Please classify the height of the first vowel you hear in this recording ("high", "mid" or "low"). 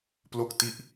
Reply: mid